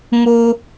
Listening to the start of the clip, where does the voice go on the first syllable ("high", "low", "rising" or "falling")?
high